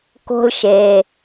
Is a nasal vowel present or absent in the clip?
absent